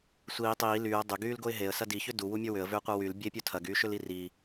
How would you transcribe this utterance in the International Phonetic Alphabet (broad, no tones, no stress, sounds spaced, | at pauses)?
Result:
sʷ iː tˤ iː l yː ə̯ dˤ ʏ ɡ yː l ɡ o ɪ̯ ɦ e ə̯ s ɐ d i ç ʏ d u w u mʲ ə˞ w ʏ ə̯ v ʏː qʷ ɐ w y l bʲ e pʲ u tʰ ɐ ɡ yː ʃ ʏ l i r i